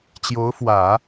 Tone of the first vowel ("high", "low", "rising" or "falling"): rising